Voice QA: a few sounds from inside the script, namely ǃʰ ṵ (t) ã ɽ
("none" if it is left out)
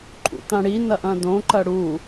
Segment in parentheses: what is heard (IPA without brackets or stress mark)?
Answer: t